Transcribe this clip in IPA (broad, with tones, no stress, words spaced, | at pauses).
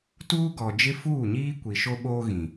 tuː˦ɡɔ˨ d͡ʒɪ˦fuː˦˨ɲiː˦ kʷi˨ʃo˦ɓoː˦ɣĩ˨